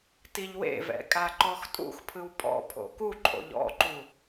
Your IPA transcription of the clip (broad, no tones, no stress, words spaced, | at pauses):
tiʎwḛvɛ̰ kʼaǃɔxtʼṵxpʰɯw pʼɔ̰pʰo̰ kuǃʼo̰ʎ ɔ̰ǃu